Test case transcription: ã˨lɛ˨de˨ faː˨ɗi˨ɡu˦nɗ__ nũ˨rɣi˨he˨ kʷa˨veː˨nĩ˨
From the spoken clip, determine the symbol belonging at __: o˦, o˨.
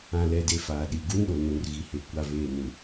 o˨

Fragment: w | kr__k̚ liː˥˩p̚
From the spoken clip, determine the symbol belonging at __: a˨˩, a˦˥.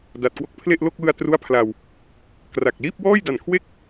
a˨˩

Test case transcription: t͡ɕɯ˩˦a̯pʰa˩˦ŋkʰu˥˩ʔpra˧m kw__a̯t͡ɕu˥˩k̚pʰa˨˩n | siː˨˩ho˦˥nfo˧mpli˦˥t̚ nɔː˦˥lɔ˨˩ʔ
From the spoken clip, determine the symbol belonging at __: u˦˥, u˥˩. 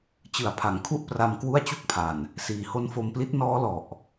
u˥˩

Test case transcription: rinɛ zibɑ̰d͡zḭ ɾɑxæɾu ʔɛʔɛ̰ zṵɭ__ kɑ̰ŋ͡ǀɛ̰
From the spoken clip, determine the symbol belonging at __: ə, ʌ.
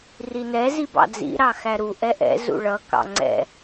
ʌ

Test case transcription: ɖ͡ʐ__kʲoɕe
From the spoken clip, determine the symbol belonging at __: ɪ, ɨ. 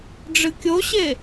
ɨ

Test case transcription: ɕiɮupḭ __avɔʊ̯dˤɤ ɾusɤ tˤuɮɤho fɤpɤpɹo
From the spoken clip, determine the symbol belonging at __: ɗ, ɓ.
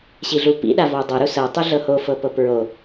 ɗ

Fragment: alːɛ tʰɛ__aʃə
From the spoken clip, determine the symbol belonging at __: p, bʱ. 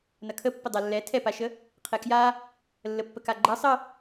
p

